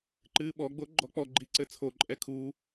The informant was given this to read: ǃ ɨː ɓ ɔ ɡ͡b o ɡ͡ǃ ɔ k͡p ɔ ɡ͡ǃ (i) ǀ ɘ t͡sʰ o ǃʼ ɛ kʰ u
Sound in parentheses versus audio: correct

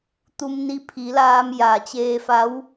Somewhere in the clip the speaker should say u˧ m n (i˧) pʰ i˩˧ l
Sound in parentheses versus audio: correct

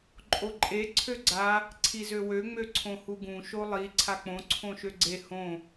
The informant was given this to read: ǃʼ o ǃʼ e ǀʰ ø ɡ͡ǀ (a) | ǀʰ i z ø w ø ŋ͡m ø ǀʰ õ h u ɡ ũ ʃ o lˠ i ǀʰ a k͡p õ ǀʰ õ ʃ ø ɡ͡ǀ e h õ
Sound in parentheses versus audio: correct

